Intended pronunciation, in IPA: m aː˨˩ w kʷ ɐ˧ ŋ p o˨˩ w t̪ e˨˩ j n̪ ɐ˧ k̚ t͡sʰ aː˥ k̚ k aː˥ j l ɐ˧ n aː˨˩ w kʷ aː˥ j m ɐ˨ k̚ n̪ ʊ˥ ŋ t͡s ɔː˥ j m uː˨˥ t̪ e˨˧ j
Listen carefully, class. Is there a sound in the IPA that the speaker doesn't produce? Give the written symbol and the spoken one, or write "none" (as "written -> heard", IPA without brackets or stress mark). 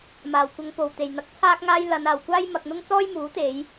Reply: k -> ŋ